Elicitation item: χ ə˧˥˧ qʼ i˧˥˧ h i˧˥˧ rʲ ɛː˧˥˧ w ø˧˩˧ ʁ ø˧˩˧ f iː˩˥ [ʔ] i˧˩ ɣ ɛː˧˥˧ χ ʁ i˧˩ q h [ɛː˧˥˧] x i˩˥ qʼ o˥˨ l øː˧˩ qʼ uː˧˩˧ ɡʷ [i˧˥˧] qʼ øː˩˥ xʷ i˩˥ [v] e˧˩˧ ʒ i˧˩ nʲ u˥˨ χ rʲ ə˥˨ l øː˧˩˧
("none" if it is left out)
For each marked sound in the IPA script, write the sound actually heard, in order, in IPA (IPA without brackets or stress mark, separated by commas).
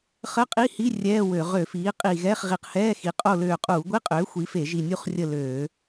qʼ, ɛː˧˥˧, i˧˥˧, f